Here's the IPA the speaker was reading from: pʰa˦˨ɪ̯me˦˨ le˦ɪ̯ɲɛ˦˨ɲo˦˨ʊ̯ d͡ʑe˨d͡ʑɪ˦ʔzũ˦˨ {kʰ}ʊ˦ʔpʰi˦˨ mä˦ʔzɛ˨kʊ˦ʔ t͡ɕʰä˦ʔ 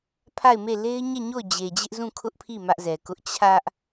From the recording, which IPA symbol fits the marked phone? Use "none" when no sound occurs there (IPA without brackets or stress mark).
kʰ